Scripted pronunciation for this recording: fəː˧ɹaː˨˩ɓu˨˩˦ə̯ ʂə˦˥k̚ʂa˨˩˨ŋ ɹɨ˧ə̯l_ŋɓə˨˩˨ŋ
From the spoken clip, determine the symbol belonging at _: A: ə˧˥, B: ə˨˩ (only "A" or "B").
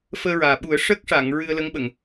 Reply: A